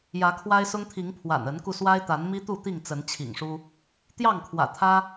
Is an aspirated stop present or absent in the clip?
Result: present